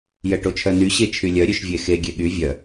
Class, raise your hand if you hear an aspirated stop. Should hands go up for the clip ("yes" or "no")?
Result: yes